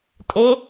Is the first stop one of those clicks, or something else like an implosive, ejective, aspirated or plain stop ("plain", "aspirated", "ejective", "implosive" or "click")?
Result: ejective